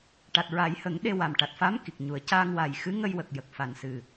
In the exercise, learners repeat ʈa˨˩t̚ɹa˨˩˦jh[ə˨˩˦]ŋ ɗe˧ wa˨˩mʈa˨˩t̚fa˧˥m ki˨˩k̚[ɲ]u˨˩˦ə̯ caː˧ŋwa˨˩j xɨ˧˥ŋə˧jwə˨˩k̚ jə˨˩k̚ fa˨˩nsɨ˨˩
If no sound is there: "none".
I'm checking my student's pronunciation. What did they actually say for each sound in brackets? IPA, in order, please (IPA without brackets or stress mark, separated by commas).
ə˨˩˦, ɲ